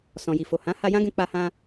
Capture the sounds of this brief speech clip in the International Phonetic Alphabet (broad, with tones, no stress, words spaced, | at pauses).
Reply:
sɔ̃˨ji˨fo˨ hã˨˦ ha˧ jã˦ɡɛ̃˧ k͡pa˧hã˧